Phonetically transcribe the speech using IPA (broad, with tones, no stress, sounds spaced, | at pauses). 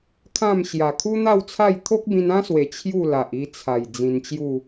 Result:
kʰ ã˥˧ m ɕ j a˨˩ kʰ u˦ n̪ a˥˧ w t͡sʰ a˥˧ j t̪ʰ o˦ k̚ b ĩ˧ n ã˦ s w e˨˩ t͡ɕʰ j u˥˧ l a˨ ʔ i˧ t͡sʰ a˨˩ j d͡z ĩ˧ n t͡ɕ j u˥˧